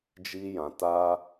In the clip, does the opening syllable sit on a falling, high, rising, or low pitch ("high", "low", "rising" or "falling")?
high